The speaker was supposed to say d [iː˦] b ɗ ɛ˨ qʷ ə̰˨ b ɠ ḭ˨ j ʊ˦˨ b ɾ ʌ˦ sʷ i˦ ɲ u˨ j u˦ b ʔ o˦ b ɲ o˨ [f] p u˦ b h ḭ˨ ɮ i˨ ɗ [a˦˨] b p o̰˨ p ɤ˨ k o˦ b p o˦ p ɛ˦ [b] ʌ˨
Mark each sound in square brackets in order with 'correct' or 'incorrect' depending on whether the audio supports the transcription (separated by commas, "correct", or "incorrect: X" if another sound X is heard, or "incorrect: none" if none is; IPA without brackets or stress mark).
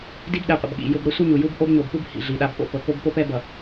incorrect: i˦, incorrect: b, incorrect: a˦, correct